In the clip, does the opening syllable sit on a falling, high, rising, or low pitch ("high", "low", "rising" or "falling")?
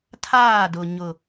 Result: falling